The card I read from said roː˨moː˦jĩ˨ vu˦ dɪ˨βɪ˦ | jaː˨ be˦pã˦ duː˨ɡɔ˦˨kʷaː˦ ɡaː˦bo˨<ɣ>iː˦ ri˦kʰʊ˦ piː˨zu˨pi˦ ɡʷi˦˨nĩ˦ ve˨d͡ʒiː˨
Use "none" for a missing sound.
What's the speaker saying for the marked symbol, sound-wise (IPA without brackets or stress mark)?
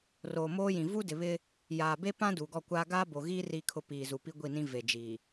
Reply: ɣ